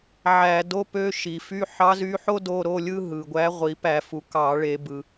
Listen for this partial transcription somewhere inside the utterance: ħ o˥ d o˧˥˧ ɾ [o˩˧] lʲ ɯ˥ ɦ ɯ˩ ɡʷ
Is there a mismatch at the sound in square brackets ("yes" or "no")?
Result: yes